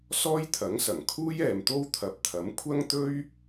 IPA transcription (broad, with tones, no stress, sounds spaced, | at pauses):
s ɔː˥ j t̪ʰ ɐ˨˥ ŋ s ɐ˨˩ ŋ kʰ uː˥ j ɛː˨ m t̪ o˥ w t̪ʰ ɐ˨˥ p̚ t̪ʰ ɐ˨˥ m kʷʰ ɐ˥ ŋ t̪ ɵ˥ ɥ